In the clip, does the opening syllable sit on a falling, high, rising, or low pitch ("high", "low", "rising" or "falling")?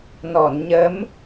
low